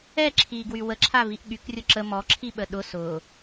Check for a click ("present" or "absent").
present